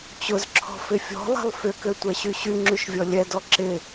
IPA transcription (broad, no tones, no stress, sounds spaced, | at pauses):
t͡ɕ ʊ z ǁʰ ɔ̤ f ɪ fʲ ɔ̤ lˠ ɛ̤ lˠ f ʏ k ø tʷ ɛ ɕ y ɕ y ŋ͡ǁ y ʃ vʲ ɔ lʲ ɛ d ɔ ǁ ɪ